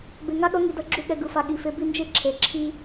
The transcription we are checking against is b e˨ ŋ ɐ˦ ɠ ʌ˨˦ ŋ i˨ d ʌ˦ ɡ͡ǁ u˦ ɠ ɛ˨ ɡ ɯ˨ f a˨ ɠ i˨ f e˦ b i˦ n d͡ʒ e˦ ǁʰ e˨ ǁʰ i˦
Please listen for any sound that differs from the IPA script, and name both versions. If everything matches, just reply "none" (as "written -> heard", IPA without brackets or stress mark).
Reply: ɐ˦ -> a˦